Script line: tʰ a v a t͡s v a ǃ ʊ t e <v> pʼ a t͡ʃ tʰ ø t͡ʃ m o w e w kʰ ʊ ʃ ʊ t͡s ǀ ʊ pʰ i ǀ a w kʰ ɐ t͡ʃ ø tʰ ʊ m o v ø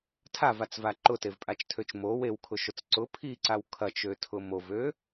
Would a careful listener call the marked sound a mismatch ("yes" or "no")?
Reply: no